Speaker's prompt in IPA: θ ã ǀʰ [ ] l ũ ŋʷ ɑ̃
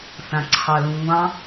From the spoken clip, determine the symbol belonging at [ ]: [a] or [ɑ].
ɑ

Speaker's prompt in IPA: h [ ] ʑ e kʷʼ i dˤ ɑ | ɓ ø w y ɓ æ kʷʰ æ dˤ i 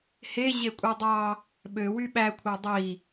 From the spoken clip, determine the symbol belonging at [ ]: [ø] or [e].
e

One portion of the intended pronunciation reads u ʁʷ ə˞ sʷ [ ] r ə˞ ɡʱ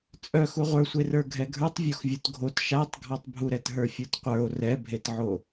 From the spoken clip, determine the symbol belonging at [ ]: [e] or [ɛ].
e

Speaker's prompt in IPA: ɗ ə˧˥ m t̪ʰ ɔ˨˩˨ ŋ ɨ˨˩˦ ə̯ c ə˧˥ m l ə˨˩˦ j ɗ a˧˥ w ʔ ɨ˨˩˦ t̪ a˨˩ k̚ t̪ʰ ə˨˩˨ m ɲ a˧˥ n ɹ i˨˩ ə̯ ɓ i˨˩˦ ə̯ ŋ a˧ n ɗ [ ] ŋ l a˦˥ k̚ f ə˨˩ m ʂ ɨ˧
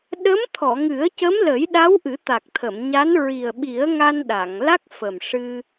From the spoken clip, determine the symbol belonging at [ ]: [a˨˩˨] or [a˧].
a˨˩˨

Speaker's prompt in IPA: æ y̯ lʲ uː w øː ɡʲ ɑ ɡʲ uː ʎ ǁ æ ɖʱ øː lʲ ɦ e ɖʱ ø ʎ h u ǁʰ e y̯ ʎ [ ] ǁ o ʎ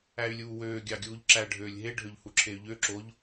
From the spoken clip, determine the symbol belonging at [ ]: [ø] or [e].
ø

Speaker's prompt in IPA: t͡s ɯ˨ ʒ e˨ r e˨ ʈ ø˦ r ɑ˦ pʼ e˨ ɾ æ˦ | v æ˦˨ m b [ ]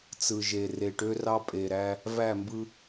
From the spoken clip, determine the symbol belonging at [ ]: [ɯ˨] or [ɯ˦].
ɯ˦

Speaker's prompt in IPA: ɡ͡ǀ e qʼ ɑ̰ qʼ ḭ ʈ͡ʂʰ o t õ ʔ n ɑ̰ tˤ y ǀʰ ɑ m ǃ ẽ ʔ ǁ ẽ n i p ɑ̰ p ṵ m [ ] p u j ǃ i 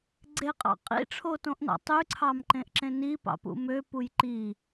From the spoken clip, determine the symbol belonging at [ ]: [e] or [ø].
ø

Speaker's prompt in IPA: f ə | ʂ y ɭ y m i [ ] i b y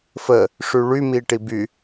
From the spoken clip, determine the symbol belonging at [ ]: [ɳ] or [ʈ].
ʈ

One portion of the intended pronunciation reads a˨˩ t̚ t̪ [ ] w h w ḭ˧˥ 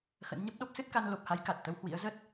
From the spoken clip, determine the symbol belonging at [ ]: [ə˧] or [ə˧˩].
ə˧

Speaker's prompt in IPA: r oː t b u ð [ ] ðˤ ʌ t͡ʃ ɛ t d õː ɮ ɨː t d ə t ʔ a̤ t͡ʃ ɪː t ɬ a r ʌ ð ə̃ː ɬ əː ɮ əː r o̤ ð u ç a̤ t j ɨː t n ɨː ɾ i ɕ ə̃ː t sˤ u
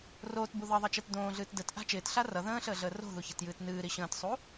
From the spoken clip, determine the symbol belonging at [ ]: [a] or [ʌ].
ʌ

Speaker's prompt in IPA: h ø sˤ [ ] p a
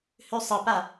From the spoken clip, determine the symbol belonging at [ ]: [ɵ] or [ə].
ə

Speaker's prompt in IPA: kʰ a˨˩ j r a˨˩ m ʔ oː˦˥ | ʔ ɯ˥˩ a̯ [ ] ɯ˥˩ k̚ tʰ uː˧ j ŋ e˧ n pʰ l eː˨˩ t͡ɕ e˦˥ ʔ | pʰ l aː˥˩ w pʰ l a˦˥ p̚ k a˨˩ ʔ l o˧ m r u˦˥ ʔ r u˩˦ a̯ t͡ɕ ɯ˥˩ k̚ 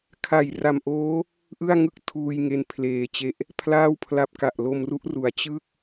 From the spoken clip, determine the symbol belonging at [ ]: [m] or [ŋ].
ŋ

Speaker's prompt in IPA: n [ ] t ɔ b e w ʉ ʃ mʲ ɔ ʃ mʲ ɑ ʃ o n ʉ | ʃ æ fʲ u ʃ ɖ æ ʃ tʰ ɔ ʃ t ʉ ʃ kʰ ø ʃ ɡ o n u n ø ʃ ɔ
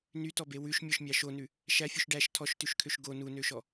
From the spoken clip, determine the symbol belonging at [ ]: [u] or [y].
y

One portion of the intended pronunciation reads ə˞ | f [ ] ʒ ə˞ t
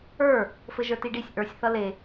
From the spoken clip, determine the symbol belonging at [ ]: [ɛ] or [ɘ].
ɘ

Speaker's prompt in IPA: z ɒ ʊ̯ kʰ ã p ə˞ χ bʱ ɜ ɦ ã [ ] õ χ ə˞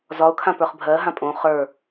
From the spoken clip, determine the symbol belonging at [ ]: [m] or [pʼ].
pʼ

